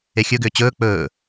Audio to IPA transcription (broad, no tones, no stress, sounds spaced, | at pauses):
e xʲ ɵ ɡ ʏː t͡ɕ ɵː k͡p ɵː